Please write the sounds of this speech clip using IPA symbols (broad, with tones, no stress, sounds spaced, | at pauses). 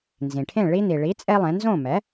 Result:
n z ĩ˩ ʈʰ ẽ˥˩ ɭ i˧ n̪ i˩ ɭ i˩˥ t͡sʼ e˥ lˠ ẽ˩˥ n z õ˥˩ m ɛ˩˥